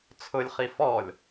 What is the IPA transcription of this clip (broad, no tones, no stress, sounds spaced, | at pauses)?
t͡sʰ ʊ lʲ χ i f ɔ lʲ